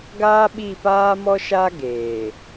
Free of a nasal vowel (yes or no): yes